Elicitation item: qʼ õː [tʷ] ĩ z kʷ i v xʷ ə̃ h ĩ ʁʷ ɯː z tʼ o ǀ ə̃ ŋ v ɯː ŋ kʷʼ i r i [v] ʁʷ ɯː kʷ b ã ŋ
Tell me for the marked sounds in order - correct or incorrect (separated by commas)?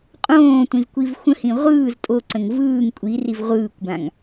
correct, correct